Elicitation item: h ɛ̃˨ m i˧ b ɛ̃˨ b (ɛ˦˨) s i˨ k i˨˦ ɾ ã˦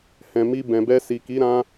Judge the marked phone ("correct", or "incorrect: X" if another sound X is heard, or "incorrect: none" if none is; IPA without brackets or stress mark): incorrect: ɛ˧